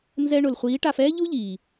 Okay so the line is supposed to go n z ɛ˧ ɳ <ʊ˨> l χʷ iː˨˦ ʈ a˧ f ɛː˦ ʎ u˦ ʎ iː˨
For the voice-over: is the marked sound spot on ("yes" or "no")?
yes